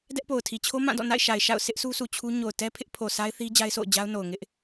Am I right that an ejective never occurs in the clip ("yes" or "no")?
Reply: yes